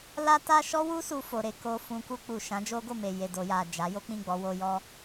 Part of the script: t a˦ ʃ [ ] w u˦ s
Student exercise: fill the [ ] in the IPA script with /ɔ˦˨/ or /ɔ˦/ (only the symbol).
ɔ˦